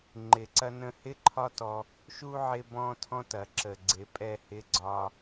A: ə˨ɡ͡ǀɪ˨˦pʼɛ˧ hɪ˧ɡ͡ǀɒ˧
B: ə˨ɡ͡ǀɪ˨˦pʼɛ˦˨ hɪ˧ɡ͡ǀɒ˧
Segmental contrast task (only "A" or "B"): B